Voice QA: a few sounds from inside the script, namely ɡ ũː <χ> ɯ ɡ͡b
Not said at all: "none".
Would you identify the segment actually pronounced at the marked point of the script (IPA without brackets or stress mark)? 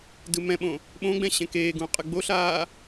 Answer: qʼ